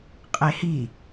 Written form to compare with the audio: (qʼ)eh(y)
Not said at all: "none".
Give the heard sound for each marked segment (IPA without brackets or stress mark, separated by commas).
qʼ, i